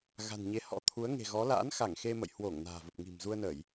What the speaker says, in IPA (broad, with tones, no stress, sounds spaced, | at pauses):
ɣ a̤˨˩ n ɲ e˨˦ h ɔ̰˧˥ t̪ʰ u˨˦ ə̯ ŋ e̤˨˩ ɣ ɔ˨˦ l a̰ː˧˥ n x a˧˩ ŋ x e˧ m ə̰˧˨ j h w o˧˩ ŋ n a̤ː˨˩ v ə˨˩ p̚ ŋ i̤˨˩ m z u˧ ə̯ n ə˧˩˨ j